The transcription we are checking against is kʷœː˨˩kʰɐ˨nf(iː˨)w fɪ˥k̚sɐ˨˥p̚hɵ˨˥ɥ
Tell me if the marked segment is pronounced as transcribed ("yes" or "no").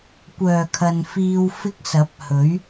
no